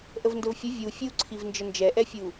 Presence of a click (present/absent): present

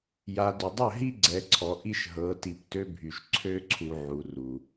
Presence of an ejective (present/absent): absent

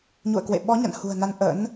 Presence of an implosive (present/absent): present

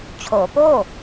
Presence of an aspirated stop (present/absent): present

